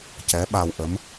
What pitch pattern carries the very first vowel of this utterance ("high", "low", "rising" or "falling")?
rising